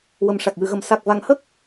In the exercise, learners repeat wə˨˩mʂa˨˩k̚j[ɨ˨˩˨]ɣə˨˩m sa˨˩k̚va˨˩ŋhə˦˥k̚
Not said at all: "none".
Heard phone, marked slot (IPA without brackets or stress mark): ɨ˨˩˨